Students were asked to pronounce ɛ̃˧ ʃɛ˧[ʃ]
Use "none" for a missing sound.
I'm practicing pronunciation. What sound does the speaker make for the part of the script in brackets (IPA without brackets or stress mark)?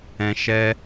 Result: none